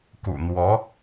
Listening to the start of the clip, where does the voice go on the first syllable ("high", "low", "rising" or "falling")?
low